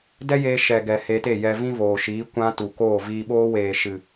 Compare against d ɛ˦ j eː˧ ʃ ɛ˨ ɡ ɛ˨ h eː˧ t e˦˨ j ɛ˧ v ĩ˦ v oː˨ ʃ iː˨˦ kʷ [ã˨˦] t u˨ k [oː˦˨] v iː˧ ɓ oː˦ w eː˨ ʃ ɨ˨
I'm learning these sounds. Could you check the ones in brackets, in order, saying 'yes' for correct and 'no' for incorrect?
no, yes

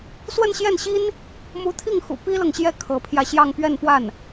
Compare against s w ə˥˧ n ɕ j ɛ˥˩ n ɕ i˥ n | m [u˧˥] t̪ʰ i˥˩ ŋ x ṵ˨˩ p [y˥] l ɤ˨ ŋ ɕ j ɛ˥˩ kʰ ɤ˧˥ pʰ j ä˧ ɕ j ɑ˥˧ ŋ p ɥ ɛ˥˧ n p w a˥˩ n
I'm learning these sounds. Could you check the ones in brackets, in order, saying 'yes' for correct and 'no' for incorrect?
yes, no

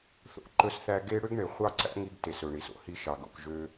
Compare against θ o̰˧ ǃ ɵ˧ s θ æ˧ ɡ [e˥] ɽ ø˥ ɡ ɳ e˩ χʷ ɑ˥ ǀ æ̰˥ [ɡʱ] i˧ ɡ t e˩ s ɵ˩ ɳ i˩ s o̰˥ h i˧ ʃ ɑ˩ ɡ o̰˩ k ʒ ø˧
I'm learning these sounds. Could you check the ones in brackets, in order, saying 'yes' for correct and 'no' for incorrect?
yes, no

